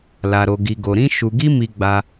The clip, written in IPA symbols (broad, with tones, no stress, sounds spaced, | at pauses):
l a˧ ɾ o˧ ɡ i˧ ɡ o˧ ɾ ĩ˦ ʃ u˧ ɡ i˦ m i˧ ɡ͡b a˧